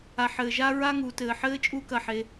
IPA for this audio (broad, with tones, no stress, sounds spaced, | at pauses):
a˨ ħ ɘː˨ ʒ a˦ ɹ a˦ ŋ uː˨ t ɘː˨ ħ ɘː˦ t͡ʃʼ u˦ k ɐ˦ ħ e˨˦